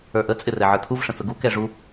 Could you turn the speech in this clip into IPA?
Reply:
ə˞ ʔ ə t͡sʼ ɪ r ɛ ʕ ə˞ tʰ u v ʂ ə̃ t͡s ʊ ɡ u k ɛ ʐ u

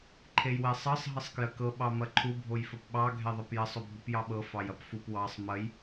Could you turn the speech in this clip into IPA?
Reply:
ǃʰ e j w ɛ sˤ ɤ sˤ ɦ ə sˤ k j ə k ɤ ɓ ɑ m ɐ ǃʰ u bʱ o j f ɐ p ɓ ɑ ɡʱ ɛ ðˤ ɪ p j ɐ sˤ o bʱ u p j ɑ ɓ ɤ f ɑ j ɐ p f u p w ɑ sˤ m ɐ j

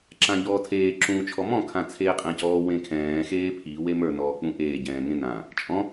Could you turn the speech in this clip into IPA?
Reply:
ǁ ã ʎ ɔː tʰ eː ǁ ũː t͡ʃʰ ɔ m ɔ̃ kʰ ã t͡sʰ eː qʼ ɛ̃ː c ɔː w ẽ kʰ ɛ̃ː x eː pʰ i w e m ə˞ n ɔː k͡p ũ ʔ eː ɟ ɛ̃ː ŋ ẽ n ã | t͡ʃʼ ɔ̃

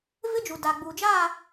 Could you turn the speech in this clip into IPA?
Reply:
v ɪ˦ d͡ʒ u˨ d a˨ ɡ͡b u˨ d͡ʒ aː˦˨

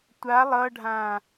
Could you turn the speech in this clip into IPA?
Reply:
tʷ a lˠ ʌ ɖʱ ã

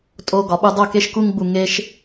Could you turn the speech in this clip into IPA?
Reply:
tʼ o˧ ɡ ɒ˨ ɓ u˧ dˤ o˦˨ k e˦ ʃ k u˦ ŋ ɡ͡b u˧ ŋ e˧ ʃ

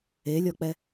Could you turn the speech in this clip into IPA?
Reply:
e lʲ ɔ k͡p ɛ

